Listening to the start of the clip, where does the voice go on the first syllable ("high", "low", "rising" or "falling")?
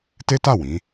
high